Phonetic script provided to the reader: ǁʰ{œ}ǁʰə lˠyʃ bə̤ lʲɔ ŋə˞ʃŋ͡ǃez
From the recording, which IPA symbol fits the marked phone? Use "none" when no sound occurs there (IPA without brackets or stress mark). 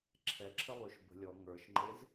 ɛ